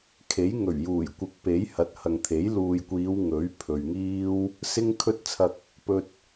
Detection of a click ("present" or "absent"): absent